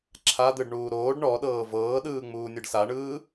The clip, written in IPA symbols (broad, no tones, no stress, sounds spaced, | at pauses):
ǁʰ a d̪ ɯ ɖ ɳ uː ɾ oː ɖ ɳ ɔ ɗ ɤː v ɤː ɗ ɯː ŋ͡m uː nʲ ɯ ɖ s a ɳ ɯː